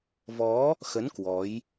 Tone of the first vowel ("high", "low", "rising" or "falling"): rising